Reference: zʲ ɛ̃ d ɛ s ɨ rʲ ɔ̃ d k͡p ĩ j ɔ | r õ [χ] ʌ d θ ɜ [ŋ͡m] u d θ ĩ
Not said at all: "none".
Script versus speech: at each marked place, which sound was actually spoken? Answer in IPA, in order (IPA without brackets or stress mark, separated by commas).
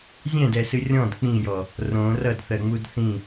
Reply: r, ŋ͡m